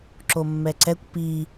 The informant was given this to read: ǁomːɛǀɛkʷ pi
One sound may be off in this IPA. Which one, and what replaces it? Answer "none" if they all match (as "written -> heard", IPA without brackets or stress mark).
none